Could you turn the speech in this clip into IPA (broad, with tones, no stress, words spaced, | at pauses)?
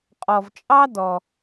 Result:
qʼɔ˩vt͡ʃʼɑ˧ dɔ˩